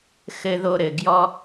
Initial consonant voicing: voiceless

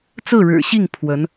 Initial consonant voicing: voiceless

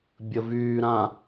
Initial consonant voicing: voiced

